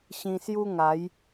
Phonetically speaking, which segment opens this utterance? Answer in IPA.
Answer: ɕ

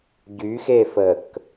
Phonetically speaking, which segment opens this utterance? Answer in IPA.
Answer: ɟ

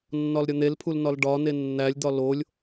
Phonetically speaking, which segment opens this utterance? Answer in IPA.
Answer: nː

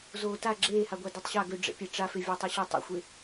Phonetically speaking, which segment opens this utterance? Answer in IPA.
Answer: z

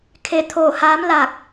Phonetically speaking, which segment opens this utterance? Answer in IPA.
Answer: kʰ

